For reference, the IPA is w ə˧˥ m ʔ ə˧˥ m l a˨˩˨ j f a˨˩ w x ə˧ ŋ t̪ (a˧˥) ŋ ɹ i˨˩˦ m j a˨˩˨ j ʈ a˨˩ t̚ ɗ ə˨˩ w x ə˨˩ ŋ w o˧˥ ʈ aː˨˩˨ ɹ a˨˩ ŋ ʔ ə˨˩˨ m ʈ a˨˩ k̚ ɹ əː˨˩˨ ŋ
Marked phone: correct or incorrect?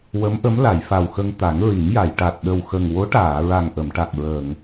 incorrect: a˨˩˦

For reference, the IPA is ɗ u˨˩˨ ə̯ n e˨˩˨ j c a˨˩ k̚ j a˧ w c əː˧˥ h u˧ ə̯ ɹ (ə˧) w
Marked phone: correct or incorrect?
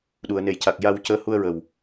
incorrect: ə˨˩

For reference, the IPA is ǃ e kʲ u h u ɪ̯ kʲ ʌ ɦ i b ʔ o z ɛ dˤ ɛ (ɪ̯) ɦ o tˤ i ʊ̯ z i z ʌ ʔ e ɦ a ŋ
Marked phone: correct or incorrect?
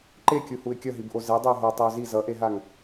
incorrect: ʊ̯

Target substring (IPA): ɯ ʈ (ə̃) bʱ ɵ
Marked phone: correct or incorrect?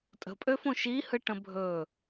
correct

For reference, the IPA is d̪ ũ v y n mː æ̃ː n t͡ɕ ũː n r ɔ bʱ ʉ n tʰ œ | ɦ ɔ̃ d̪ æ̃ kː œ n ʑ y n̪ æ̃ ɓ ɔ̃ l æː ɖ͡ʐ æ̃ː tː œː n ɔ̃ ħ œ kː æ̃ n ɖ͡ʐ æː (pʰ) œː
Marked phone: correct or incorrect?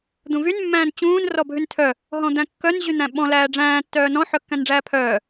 correct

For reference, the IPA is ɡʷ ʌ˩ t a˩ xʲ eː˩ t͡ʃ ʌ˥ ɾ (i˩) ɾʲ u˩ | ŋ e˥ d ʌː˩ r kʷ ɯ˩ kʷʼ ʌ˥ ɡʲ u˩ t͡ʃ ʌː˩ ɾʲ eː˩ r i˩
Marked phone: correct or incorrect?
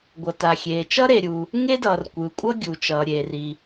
incorrect: e˩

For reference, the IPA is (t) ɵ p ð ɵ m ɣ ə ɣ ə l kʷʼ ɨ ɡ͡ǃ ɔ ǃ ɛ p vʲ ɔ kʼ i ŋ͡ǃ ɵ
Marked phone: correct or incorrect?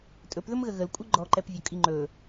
incorrect: tʼ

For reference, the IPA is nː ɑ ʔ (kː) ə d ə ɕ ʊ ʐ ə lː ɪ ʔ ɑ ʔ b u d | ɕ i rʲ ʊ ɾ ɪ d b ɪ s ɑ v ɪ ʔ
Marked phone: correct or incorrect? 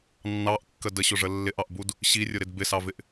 correct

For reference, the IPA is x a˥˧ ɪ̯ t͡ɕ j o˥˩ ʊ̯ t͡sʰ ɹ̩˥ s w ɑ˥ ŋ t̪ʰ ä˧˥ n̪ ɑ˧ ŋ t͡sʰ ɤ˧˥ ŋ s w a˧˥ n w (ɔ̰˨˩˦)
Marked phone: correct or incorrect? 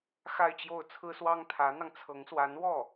incorrect: ɔ˥˩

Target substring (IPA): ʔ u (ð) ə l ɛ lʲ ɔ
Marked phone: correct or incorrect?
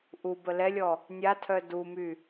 incorrect: b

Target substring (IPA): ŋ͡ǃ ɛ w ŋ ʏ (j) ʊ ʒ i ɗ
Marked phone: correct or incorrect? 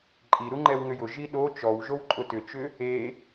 correct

